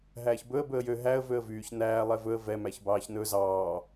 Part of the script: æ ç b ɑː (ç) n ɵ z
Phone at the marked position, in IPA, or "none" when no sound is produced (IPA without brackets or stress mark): ç